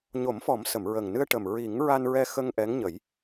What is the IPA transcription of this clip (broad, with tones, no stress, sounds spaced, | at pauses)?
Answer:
ɲ o˨˩˦ m f ɔ˨˩˦ m s ə˨˩˨ m ɹ ə˨˩ ŋ n ɨ˧ ə̯ ʈ ə˨˩ m ɹ i˨˩˦ ŋ ɹ a˧ n ɹ ɛ˧ x ə˧ ŋ ʔ ɛ˧˥ ŋ ɲ ə˨˩˦ j